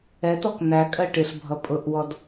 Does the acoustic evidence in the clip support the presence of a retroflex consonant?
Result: yes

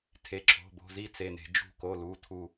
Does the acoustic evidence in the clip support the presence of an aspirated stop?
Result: yes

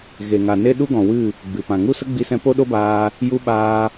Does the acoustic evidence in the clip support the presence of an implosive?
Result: yes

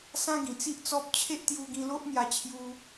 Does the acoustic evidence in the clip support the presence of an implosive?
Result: no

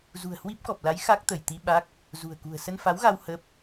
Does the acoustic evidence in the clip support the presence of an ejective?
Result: no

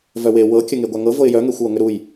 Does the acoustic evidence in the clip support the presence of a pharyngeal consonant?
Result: no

